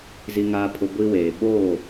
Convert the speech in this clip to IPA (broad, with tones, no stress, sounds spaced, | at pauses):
z i˨ ŋ aː˨ pʰ ʊ˨ ɡʷ i˦ w eː˨ ɓ oː˦˨